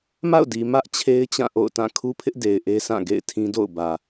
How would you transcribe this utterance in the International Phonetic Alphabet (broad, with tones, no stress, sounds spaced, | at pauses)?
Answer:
m a̰˦˨ ʊ̯ d i˨ m ä˦ ʔ t͡ɕʰ e˦ ɪ̯ t͡ɕ ã˦˨ ʔ o̰˦˨ ʊ̯ t ã˦˨ kʰ u˦ pʰ ɪ˦ ʔ d e˨ ɪ̯ ʔ e˦ s ã˦˨ ɡ ḛ˦˨ ɪ̯ tʰ ĩ˦ d o̰˦˨ ʊ̯ b ä˨